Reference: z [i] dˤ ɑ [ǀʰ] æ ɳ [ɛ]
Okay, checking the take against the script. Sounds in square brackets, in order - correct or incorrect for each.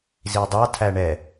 correct, incorrect, correct

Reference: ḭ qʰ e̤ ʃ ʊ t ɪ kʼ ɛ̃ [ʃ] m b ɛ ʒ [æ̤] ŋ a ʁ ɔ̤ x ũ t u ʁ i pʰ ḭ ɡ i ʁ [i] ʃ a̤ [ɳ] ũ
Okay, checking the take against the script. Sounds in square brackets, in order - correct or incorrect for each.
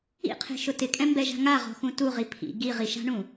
incorrect, incorrect, correct, correct

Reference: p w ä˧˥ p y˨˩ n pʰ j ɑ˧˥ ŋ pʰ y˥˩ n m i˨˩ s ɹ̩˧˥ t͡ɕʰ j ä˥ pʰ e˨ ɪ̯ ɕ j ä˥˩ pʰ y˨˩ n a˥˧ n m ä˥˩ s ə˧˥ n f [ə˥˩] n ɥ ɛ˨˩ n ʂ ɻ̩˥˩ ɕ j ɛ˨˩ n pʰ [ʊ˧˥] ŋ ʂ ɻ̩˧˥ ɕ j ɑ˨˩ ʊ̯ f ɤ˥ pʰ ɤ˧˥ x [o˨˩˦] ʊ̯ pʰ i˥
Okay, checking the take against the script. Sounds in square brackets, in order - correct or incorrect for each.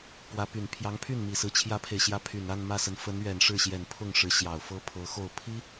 incorrect, incorrect, incorrect

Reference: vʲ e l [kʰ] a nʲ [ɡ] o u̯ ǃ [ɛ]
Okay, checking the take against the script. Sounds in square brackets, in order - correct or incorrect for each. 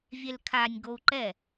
correct, correct, correct

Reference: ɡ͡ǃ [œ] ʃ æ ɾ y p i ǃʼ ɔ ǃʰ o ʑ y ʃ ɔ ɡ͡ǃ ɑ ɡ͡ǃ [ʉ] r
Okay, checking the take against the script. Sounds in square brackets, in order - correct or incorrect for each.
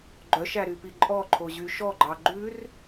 correct, correct

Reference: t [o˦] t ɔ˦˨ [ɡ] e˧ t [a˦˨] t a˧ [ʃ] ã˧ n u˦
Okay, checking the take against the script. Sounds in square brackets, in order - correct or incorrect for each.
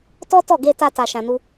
incorrect, correct, incorrect, correct

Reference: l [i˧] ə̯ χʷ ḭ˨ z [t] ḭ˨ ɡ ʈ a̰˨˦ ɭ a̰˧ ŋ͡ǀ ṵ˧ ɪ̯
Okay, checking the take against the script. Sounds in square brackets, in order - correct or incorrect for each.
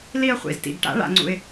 correct, correct

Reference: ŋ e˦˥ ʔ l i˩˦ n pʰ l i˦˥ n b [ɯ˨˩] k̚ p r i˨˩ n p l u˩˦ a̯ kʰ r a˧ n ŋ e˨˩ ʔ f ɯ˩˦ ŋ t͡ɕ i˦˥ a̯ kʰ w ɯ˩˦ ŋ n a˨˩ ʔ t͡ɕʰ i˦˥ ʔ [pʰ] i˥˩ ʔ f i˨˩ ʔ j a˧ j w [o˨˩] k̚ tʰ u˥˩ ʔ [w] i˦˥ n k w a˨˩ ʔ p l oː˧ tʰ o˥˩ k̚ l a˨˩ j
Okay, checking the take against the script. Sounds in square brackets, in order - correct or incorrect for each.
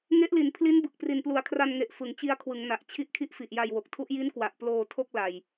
correct, incorrect, correct, incorrect

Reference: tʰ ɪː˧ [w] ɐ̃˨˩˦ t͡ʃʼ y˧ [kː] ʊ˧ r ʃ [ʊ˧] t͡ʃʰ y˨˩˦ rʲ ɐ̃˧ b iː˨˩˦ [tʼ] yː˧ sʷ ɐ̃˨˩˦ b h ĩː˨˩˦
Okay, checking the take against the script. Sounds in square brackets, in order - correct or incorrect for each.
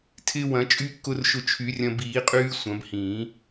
correct, correct, correct, incorrect

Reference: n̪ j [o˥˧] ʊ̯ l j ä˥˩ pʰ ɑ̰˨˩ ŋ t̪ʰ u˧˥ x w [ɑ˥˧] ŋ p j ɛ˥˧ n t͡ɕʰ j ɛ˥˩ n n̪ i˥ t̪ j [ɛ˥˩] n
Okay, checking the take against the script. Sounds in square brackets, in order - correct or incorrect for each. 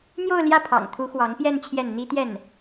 correct, incorrect, correct

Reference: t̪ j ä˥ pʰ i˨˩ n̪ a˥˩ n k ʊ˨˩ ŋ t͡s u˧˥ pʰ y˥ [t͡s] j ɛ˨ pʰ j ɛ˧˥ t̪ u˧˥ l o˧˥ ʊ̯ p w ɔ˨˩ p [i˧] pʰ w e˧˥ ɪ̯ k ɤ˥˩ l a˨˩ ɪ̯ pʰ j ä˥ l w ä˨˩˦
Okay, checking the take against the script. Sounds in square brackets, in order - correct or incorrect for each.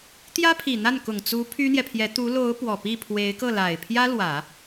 incorrect, incorrect

